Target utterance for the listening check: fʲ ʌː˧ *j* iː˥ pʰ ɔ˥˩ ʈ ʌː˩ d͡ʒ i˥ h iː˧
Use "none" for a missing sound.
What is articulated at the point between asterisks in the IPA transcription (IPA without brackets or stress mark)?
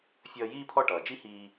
j